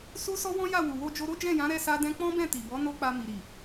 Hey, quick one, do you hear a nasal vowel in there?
yes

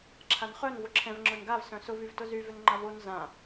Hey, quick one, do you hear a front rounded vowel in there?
yes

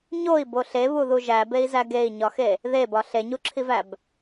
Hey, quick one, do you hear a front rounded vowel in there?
no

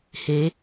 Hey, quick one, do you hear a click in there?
no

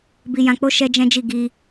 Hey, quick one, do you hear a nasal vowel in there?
yes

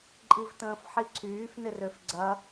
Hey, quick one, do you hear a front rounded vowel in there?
yes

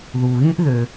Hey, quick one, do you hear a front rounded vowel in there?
yes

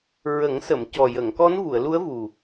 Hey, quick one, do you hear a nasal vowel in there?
no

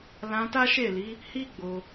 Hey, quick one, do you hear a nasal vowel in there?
yes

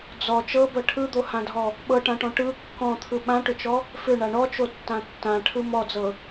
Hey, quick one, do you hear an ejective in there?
no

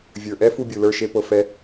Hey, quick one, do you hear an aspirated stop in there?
no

